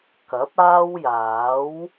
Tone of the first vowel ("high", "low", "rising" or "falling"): rising